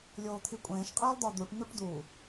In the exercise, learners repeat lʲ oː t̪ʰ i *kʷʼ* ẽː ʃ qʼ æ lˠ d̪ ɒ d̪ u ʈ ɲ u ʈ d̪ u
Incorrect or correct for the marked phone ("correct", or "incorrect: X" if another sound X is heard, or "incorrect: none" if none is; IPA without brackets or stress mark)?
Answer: correct